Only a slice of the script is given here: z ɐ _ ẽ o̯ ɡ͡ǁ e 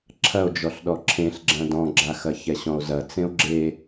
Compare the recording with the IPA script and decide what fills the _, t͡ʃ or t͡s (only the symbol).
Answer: t͡s